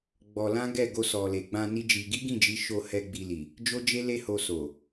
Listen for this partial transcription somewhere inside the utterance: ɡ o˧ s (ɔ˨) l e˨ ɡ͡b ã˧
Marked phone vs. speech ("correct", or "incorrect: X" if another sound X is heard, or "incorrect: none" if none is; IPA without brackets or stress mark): correct